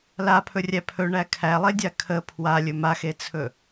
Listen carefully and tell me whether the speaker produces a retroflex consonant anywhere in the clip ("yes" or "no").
yes